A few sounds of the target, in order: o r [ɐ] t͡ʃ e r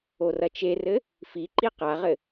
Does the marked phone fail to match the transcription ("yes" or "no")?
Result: no